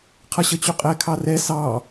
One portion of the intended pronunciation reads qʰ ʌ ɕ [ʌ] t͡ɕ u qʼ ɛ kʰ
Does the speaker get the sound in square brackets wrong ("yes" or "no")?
no